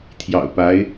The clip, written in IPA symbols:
t̪ʰ j ɑ̰˨˩ ʊ̯ p a˧˥ ɪ̯

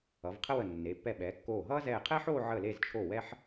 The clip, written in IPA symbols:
ʌ˩˧ v qʰ ə˥ w ə˧˩ nː e˩˧ pː ɛ˧˩ ɓ ɛː˩˧ kː oː˧˩ ɦ ʌː˥ z ɛː˧˩ qʰ ɛ˥ ħ oː˥˧ ʕ ə˧˩ l e˧˩ z t͡ʃʰ o˧˩ w ɛ˧ ħ

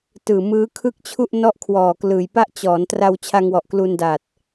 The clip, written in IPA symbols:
t ɯː˨˩ m ɯː˦˥ kʰ ɯ˥˩ k̚ t͡ɕʰ u˥˩ ʔ n ɔ˥˩ ʔ kʰ w ɔː˨˩ k l ɯː˨˩ j p a˥˩ ʔ t͡ɕ ɔː˩˦ n t r a˧ w t͡ɕʰ a˧ ŋ w ɔ˨˩ ʔ k l u˧ n d a˨˩ t̚

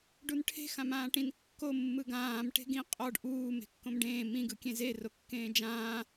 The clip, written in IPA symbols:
ɖ u n ʈʰ e̤ x ã m ãː ʈ ĩ n kː o mː ɯ ɡ ãː m ʈ e̤ ɡ ĩ qʼ ɔ ɖ ʔ uː m e̤ kː õ m ɖ ẽː m ĩ ɡ ɯ kʲ ẽ z e r o kː ẽː d͡ʒ ãː

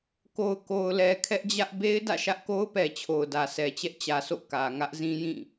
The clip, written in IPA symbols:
k o˨ ʊ̯ k o˨ ʊ̯ l ɛ˨ kʰ ɛ˦ ʔ d͡ʑ ä˦ ʔ b e˦ ɪ̯ d ä̰˦˨ ʃ ä˦ ʔ k o˦ ʊ̯ p ɛ˨ t͡ɕʰ o˨ ʊ̯ d ä˨ s ɛ˨ t͡ɕ ɛ˦ ʔ t͡ɕ ä˨ s o̰˦˨ k ä˨ ŋ ä˦ ʔ z ĩ˦ j ĩ˦˨

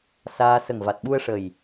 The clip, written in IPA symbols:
s aː˧ s ə˨˩ ŋ v a˨˩ t̚ ɓ u˧ ə̯ ʂ ə˨˩ j

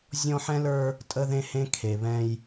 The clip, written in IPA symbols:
zʲ ɔ̃˦ ħ ɛ̃˦ l ə˞˦ | tʼ ə˦ ð ẽ˦ h ẽ˦ kʰ e˨ β ɛ̃˦ j

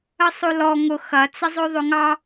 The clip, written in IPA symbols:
ə sˤ o l ɔ ŋ ʊ x ɐ t͡s ə zˤ ɵ ðˤ ɵ ŋ ɑ

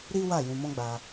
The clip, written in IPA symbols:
ɾ i˦ w a˦˨ j ũ˧ m ɔ̃˦ ɡ͡b a˧

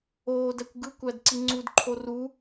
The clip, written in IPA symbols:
oː d æ kʷ ɡ ɯ kʷ æ d ǀ i ŋ͡ǀ u d ǃʰ o r u

